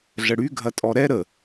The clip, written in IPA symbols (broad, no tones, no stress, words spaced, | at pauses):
ɮəɽy ɡʱɐtʼɔɾɛ ɾə